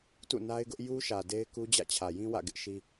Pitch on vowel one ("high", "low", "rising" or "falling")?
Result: falling